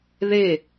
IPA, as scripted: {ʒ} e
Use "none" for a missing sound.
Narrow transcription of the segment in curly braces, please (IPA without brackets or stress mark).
ð